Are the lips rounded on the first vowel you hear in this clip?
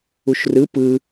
yes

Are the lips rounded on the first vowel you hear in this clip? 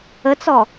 no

